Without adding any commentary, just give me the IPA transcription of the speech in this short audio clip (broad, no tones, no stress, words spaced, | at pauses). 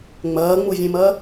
ŋ͡mɐːŋ͡muvʲẽmɐː